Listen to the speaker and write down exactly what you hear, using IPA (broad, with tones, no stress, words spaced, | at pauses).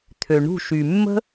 t̪ʰø˩ ɳṳ˧˩ʃy˩mːə̤˦